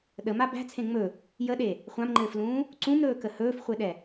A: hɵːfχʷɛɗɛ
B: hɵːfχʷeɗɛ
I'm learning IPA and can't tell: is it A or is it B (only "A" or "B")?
B